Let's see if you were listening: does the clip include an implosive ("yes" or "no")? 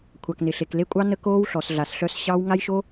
no